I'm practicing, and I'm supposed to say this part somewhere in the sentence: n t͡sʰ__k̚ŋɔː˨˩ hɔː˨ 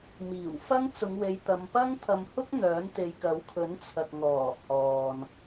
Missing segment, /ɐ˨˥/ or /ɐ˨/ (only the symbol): ɐ˨